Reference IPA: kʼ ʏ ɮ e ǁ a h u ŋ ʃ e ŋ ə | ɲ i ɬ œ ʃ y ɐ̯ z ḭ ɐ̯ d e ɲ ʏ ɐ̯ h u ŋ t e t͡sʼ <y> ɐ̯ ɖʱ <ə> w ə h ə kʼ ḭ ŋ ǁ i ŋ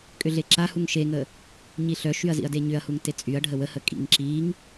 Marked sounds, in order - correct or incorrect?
correct, correct

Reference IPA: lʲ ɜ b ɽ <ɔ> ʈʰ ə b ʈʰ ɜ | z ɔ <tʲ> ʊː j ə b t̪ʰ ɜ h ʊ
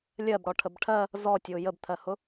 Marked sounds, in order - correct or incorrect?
correct, correct

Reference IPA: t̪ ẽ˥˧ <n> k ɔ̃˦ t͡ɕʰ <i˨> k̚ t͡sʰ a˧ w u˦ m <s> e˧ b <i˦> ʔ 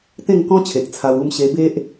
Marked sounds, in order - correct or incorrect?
incorrect, incorrect, incorrect, incorrect

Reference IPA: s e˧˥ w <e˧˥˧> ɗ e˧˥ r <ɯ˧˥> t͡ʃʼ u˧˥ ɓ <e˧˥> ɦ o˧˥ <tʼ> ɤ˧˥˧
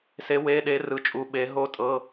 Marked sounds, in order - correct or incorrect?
correct, correct, correct, correct

